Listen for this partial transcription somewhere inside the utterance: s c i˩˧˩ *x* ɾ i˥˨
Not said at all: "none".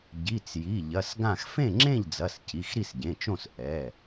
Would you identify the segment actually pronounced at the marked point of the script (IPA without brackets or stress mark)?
x